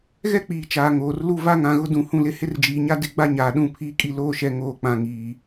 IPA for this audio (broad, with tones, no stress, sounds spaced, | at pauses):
ɣ ɛ˦ k͡p iː˨ t͡ʃ aː˨ ŋ oː˨ r l u˦ v a˦ ŋ ã˨ ɣ ʊ˦ d ũ˨ h ũ˦ l ɪ˦ h ɪ˦ r d͡ʒ iː˨ ɲ a˦ d ɪ˦˨ ɡ͡b a˦ ɲ aː˨ ɗ ũ˦˨ pʰ iː˦ kʼ i˦ l oː˦ ʃ ɛ˨ ŋ oː˨ k͡p ã˨ ŋ iː˨